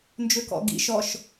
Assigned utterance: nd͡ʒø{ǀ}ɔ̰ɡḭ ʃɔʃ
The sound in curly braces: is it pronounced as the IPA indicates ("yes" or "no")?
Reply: no